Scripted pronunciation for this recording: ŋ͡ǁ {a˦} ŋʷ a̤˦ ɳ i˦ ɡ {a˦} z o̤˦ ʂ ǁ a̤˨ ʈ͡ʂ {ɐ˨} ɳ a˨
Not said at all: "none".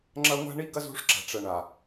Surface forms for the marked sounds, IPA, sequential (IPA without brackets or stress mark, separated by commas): ɐ˦, ɐ˦, ɐ˨